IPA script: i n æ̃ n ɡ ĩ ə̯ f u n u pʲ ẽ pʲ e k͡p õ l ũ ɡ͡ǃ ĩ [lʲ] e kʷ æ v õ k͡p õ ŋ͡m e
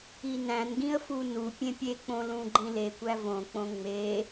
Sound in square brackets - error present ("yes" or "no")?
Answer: yes